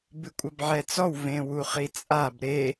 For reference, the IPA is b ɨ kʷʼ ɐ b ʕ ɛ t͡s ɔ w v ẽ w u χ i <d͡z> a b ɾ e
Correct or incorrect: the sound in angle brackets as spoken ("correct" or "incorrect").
incorrect